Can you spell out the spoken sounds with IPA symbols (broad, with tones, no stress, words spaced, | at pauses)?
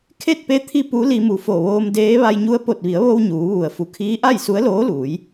kʰe˥˨t̚pe˧˥ t̪ʰi˧ pu˧˥li˧mu˩ fo˧˩ʋoː˧mdeː˧˥ ʋa˧jɲu˧˥ə̯ po˧˩t̚ʋi˩˧ə̯ʋo˧w ɲuː˩˧ʋu˩ə̯ fu˩˧kʰiː˧˥ʔa˥˨j su˧˥ə̯loː˧˥luː˩˧j